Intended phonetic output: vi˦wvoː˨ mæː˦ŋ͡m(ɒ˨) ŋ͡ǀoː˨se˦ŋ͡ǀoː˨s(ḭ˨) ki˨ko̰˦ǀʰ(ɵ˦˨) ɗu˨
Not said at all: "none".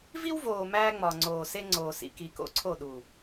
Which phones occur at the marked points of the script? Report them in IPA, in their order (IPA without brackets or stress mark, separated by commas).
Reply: ɒ˨, ḭ˨, o˦˨